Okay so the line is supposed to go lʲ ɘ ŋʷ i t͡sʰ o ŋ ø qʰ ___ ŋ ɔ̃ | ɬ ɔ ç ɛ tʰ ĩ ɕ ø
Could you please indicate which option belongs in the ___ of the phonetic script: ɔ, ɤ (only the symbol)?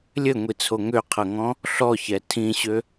ɤ